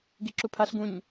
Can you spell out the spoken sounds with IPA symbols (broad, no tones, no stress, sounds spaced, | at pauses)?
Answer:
ɡ i ǁ u pʰ a ɬ ɡ ũ ɲ